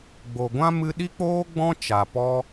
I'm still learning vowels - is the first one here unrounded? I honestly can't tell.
no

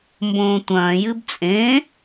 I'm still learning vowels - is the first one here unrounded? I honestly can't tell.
no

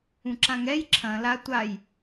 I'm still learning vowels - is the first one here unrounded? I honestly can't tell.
no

